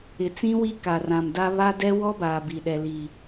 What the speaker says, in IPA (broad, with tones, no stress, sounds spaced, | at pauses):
ɪ˨ t͡s ĩ˦ w i˦ k a˨ r ã˨ m d a˦ β a˦ d ɛ˦ w ɔ˦ b aː˨ b i˨ ɗ ɛ˨ l i˨